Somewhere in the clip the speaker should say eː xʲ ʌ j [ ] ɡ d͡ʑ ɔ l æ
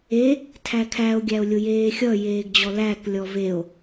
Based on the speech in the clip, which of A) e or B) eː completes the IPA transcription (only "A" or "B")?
B